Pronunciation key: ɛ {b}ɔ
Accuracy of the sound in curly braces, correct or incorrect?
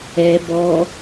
correct